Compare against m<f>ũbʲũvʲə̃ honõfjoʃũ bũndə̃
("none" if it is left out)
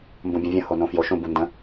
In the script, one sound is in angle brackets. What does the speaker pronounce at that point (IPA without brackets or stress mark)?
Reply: b